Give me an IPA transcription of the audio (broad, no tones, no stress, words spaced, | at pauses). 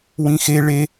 wĩxe ɭe